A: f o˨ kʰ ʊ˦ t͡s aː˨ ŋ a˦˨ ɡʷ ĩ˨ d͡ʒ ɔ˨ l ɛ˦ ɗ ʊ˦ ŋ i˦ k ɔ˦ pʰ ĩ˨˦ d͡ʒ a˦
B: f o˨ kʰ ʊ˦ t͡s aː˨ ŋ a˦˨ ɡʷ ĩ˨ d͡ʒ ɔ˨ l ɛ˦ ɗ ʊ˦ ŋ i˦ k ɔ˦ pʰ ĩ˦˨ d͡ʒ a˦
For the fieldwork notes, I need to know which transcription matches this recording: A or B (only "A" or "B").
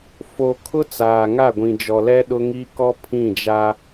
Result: B